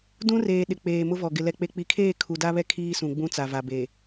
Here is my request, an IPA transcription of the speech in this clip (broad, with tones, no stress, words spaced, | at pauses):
dũ˦reː˨ ɗɪ˨ k͡peː˨mʊ˦vɔ˨ ɡɪ˨ lɛ˨k͡pe˨k͡pi˨kʰeː˦˨ kʰu˨da˦βɛ˦ kʰiː˦sũ˨ɡ͡bũ˦t͡sa˨ va˨be˨